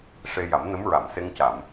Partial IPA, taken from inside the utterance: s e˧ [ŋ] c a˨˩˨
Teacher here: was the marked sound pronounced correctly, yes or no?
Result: yes